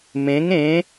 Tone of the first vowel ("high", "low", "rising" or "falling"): rising